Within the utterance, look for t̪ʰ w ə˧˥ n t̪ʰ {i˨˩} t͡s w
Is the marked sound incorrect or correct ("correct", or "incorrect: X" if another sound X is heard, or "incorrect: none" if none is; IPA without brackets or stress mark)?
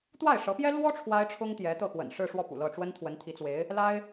incorrect: i˧˥